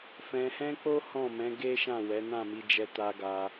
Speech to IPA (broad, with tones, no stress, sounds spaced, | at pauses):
f ɛ̃˧ h ɛ̃˦ k͡p o˦ h ɔ̃˦˨ m ɛ̃˨˦ ɡ e˦ ʃ ã˦˨ w ɛ˨˦ n ã˦˨ m i˧ d͡ʒ ɛ˧ t a˧ ɡ a˧